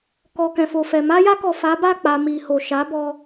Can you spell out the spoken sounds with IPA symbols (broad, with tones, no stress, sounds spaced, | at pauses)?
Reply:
k ɔ˨ k ɛ̃˨ f o˨ f ɛ˨ m a˧ j a˧ k ɔ˨ f a˨˦ b a˦˨ k͡p a˨ m i˨ h o˨ ʃ a˨˦ b ɔ˧